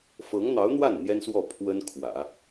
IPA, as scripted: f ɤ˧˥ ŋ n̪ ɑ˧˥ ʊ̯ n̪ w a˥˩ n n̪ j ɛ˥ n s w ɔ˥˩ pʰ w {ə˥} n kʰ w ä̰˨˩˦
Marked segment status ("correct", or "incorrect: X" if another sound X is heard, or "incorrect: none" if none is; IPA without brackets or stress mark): correct